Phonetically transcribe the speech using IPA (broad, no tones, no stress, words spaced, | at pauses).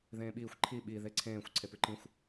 ðẽːɓiːxʷ ǃʰi ɓi ðeǀʰẽːxʷ ǀʰepʉǃĩxʷ